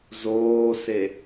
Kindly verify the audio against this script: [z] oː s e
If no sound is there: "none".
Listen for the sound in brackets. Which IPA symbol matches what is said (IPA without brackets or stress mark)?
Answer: z